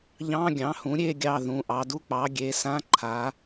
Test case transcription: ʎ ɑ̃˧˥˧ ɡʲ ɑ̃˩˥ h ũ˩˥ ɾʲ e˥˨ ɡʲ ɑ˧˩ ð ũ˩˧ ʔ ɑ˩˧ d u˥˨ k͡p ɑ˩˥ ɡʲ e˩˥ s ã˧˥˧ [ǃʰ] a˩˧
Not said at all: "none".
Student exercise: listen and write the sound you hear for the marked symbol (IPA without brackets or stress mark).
ǃʰ